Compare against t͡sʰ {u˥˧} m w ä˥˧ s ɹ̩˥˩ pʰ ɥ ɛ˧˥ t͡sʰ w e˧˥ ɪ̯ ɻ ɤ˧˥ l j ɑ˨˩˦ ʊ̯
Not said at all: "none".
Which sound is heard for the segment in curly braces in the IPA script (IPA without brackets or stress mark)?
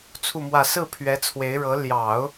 u˥˧